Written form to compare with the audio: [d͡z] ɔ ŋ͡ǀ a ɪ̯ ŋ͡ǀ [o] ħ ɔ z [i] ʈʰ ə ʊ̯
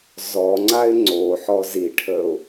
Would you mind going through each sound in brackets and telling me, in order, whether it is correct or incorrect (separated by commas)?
incorrect, correct, correct